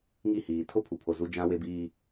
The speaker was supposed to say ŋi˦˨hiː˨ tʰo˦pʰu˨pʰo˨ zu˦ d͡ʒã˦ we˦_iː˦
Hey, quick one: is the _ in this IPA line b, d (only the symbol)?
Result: b